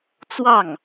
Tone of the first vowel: falling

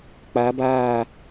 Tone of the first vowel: rising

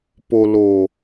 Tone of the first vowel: low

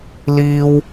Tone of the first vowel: high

